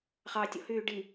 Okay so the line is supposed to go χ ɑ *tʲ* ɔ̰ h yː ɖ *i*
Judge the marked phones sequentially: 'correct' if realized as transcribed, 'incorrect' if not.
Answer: correct, correct

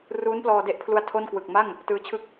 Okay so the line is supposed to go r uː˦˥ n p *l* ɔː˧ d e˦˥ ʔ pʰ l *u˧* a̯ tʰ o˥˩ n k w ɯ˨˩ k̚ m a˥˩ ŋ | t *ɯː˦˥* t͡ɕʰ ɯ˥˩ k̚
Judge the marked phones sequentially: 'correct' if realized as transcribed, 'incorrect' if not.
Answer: correct, correct, correct

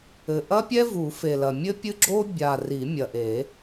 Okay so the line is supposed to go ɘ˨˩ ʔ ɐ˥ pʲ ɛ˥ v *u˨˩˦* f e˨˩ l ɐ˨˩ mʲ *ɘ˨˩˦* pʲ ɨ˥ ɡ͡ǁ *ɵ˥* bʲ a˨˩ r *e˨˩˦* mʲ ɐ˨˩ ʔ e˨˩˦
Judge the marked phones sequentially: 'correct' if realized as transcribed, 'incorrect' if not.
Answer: correct, incorrect: ɘ˥, incorrect: o˥, incorrect: i˨˩˦

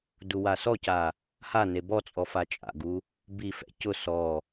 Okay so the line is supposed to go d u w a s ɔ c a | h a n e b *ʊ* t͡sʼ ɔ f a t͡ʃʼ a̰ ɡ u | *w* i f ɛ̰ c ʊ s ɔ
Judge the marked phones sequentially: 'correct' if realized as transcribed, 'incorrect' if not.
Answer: incorrect: ɔ, incorrect: b

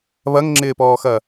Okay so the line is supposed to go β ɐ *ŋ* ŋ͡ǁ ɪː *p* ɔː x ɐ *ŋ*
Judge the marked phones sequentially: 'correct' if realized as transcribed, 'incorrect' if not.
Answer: correct, correct, incorrect: none

